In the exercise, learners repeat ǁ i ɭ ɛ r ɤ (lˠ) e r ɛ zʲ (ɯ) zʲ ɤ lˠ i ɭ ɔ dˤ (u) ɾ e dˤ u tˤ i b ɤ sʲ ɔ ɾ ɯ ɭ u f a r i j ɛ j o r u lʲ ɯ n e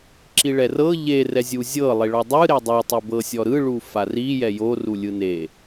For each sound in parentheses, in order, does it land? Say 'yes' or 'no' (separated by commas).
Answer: no, no, no